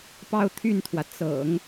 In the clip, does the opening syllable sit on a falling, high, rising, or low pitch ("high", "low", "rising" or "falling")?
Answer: falling